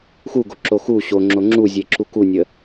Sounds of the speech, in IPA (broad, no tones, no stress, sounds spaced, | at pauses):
x u ɡ o ǁ o x u ɕ o ŋ͡ǁ o ŋ͡ǁ u zʲ e ǁ u k u nʲ ə